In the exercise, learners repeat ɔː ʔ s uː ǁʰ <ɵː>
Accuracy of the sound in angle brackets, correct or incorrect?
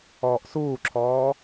incorrect